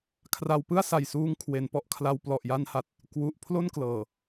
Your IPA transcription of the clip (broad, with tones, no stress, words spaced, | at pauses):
kʰra˧wpɯ˥˩a̯sa˨˩jsuː˧ŋ kʰwe˩˦npɔ˦˥ʔkʰla˧w plɔ˨˩ʔja˧nha˨˩t̚ | kwu˨˩ʔ pʰlo˥˩nklɤː˨˩